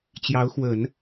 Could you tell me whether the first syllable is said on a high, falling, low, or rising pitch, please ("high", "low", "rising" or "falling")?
rising